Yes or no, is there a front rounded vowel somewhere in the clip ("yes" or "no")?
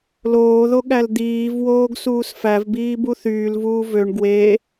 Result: yes